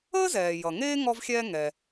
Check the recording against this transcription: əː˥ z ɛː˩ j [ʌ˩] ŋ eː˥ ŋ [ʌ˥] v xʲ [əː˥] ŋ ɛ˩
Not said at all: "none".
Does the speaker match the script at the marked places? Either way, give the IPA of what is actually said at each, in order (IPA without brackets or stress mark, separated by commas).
ʌ˩, ɔ˥, ɛː˥